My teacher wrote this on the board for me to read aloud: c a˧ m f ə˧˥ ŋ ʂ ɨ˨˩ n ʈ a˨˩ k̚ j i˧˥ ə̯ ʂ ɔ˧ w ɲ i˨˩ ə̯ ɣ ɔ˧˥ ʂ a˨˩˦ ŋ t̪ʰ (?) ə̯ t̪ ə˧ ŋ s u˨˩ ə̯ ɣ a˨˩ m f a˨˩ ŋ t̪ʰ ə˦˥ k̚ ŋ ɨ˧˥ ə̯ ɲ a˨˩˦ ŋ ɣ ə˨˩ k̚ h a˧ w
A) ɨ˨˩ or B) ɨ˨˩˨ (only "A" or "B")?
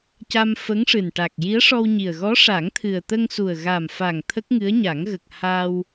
A